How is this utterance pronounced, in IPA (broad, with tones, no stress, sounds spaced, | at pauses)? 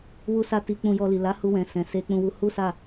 w u˧ s a˧ t i˧ k͡p ũ˧ j ɔ˧ l i˨ l a˨˦ h u˧ w ɛ̃˨ s ɛ̃˨ s e˧ k͡p ũ˧ w u˧ h u˦ s a˦˨